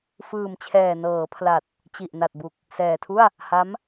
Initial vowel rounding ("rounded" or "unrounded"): unrounded